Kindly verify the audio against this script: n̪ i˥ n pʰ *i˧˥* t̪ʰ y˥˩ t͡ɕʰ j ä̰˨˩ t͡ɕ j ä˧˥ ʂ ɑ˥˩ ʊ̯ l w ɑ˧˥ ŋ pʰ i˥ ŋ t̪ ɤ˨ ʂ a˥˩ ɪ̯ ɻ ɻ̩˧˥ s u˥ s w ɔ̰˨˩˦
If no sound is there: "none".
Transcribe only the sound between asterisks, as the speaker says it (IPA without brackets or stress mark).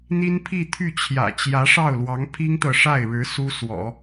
i˥˧